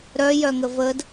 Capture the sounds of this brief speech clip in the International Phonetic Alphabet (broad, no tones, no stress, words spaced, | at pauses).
ɾœjœŋə vəd